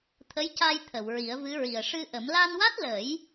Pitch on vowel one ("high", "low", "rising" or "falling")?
rising